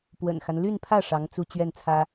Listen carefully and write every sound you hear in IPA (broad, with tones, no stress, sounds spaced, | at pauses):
p w ə̰˨˩ n x a˦ n l y˥˧ n pʰ ä˥˩ ʂ ɑ˧˥ ŋ t͡s u˥˧ t͡ɕ ɥ ɛ˥˩ n t͡sʰ ä˥